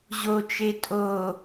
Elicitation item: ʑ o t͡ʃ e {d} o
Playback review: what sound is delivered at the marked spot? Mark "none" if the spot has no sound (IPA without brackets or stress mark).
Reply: tʼ